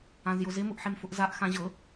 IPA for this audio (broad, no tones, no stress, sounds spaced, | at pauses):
ã z j ʊ z ɪ m ʊ ʔ ħ e m f ʊ ʔ z a ʔ x ã ʑ ɤ